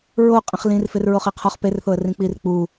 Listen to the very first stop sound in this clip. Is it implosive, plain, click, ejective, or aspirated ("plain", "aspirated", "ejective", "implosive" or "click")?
ejective